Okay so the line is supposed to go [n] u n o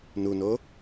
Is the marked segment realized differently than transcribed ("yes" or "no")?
no